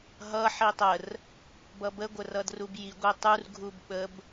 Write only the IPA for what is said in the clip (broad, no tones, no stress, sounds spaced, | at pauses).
ɦ ʌ ħ i tˤ ə r | b ʌ b ə ɡʷ ə r ʌ d r u b j i ɡʷ e tˤ u r ɡʱ u b ɓ ə b